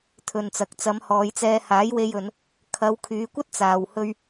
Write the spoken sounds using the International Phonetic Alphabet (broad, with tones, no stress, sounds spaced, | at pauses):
t̪ʰ ɵ˨ n t͡s ɐ˨ k̚ t͡s ɐ˨˧ m h ɔː˨˧ j t͡s ɛː˧ h aː˨˥ j w e˧ j ɵ˨˧ n | kʰ ɐ˨˧ w kʰ yː˨˧ kʷ ɐ˥ t̚ t͡s aː˨ w h ɵ˧ ɥ